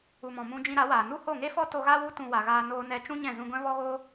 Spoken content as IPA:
u˨ m ɔ̃˨ m ũ˧ d͡ʒ ĩ˧ ɾ a˨˦ w aː˨ n u˦ h o˦˨ ŋ e˦ f ɔ˦ t o˧ ɣ a˦ w u˦ t ũ˧ w a˨ ɣ aː˧ n oː˧ n ɛ˧ t͡ʃ ũ˦ ɲ ɛ̃˦˨ z ũ˧ ɡʷ ɛ̃˦ v ɔ˦ ɣ oː˦

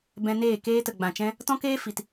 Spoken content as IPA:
b ɛ̃˧ n eː˦˨ k eː˦ t ə˨ ɡ͡b ã˨ t͡ʃ ɛ̃˦ | t ɔ̃˦ k eː˦ f i˨ t

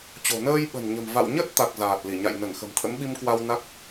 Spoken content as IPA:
t͡ɕ o̤˨˩ n əː˧ j ɓ ə̤˨˩ n ɲ ə̤˨˩ m v a̰˧˨ w ɲ ə˦˥ t̚ t̪ a˨˩ k̚ z aː˨˩ t̚ l i˧˩ ɲ a̰˧˨ j n ə˧˩ n x ə̤˨˩ m t̪ʰ ə̰˧˥ m ɓ i˧ m k w a˧ w n a˦˥ k̚

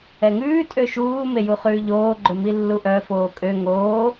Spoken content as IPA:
ɛ ŋ ʉː tʼ ø ʃ uː m e j u χ ʉː ʎ oː ɡ͡ǃ ɵ m i lː u ʔ œ f oː kʼ ø ŋ oː

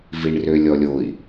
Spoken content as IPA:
v i ɳ r ø lʲ ɔ lʲ o i̯

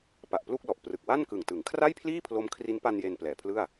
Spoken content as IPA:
p a˨˩ ʔ p l u˥˩ k̚ l ɔ˨˩ ʔ p r ɯ˨˩ k̚ w a˥˩ n k ɯ˨˩ ŋ t ɯ˩˦ ŋ kʰ r a˥˩ j pʰ l iː˥˩ pʰ l o˦˥ m kʰ r i˦˥ n p a˧ n j e˧ n p l ɛː˨˩ pʰ l ɯ˥˩ a̯

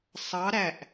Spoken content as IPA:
sˤ ɑ ɾ æ ʔ

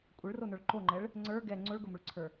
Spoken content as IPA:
kʷʼ ɘ ɭ r o n ə˞ ɭ ǃ o ŋ͡ǃ ɛ ɭ | ŋ͡ǀ ə˞ ɡ ɛ ŋ͡ǀ o ɭ ɡ ʊ m ʊ ɭ ǀʰ ə˞

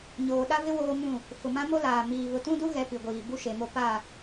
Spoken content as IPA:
ɲ oː˨ ɗ a˦ v ɪ˦ w oː˦ m ũ˦˨ | f ʊ˨ m ã˦ m o˦ l aː˨ m iː˨ β ʊ˨ t ũ˦ d u˦ ɣ ɛ˦ p i˨ ɡʷ iː˨ b u˦ ʃ e˨ m o˦ p a˦˨

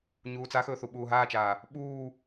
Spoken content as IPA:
ɲ uː t͡s a x ɵː θ u ɓ uː ɦ aː t͡ʃ aː | ɓ uː

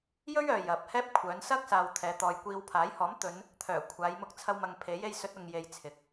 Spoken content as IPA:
j ɵ˥ ɥ œː˨ j ɐ˨ p̚ h ɛː˥ p̚ kʷʰ œː˨˧ n s ɐ˥ k̚ s aː˨ w t̪ʰ ɛː˨˧ t̪ ɔː˨ j kʷ iː˧ w pʰ aː˨˥ j h ɔː˨˥ m t̪ ɵ˨˧ n | t̪ʰ œː˨˩ kʷʰ aː˨˧ j m ʊ˧ k̚ t͡sʰ ɐ˧ w m ɐ˨ ŋ pʰ e˨˥ j e˧ j s ɵ˨˥ t̚ ʊ˧ ŋ j e˧ j t͡sʰ ɪ˨˥ k̚

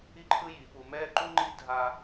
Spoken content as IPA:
i˥ ǃʰ ɯ˥ j i˩˧ p u˧ m ɛ˥˧ ǃ u˥ ŋ͡ǃ i˥ dʱ a˧

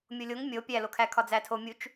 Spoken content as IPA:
mʲ o lʲ o ŋ mʲ o pʲ æ l o kʰ æ kʰ ɒ d͡z æ tʰ o mʲ u t͡ʃ

